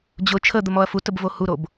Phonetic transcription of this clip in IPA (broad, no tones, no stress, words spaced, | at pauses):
d͡ʑʊ t͡ʃʰəd̪əmɔɐ̯ futəbvo huɾob